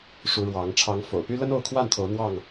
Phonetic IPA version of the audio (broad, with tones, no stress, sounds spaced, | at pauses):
ʂ u˨˦ ɻ w ɑ˨˦ ŋ ʈ͡ʂʰ ɑ˨˦ ŋ f o̰˨˩ ʊ̯ p y˦ l ə˦ n o˥˨ ʊ̯ kʰ w a˥˨ n t̪ʰ o˨˦ ʊ̯ n̪ w ɑ˥˨ ŋ